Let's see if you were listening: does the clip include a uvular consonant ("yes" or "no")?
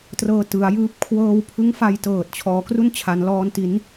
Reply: no